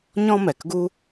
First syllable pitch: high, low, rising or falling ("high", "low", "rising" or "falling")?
high